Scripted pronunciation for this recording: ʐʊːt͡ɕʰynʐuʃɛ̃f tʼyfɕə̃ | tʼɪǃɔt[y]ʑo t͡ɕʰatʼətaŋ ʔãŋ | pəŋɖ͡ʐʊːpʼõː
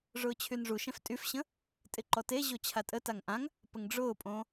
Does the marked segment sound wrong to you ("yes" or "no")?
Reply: yes